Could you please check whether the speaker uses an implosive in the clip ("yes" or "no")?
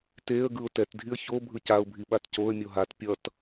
yes